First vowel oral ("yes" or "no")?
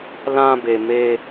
no